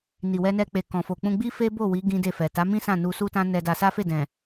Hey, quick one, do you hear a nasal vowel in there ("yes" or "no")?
yes